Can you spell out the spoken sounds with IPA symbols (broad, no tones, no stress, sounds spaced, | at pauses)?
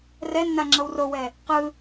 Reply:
r ɛ nː a ŋ͡ǁ ɤ w r o w ɛ | q ɯ